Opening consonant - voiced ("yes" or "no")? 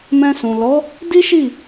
yes